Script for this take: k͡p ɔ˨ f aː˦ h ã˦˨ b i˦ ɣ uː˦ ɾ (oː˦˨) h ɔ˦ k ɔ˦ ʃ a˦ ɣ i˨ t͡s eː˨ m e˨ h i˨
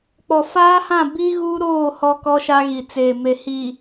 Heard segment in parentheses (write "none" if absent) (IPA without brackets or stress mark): oː˦˨